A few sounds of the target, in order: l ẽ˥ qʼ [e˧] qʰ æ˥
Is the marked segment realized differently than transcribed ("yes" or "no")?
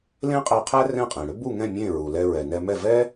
yes